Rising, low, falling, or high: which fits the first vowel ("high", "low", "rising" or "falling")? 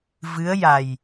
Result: rising